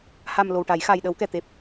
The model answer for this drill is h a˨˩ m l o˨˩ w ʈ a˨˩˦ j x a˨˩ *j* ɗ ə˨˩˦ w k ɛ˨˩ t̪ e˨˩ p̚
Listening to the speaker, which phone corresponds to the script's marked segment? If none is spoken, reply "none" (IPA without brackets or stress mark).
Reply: j